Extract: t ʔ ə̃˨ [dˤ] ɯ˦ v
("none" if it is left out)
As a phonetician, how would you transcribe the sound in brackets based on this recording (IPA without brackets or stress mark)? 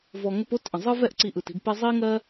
zˤ